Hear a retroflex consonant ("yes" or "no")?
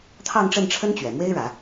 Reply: yes